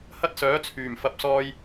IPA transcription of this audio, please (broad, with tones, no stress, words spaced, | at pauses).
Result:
hɐ˥t̚ sœː˨˥t͡sʰyː˨˩m fɐ˨p̚sɔː˧j